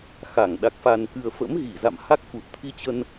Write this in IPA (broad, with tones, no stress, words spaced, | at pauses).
xa˧˩ŋ ɗa˨˩k̚fa˨˩nkɨ˨˩ə̯ fə̰˧˥mɣi˧˩za̰˧˨mha˦˥k̚ fu˨˩t̚t̪ʰi˧t͡ɕə˧n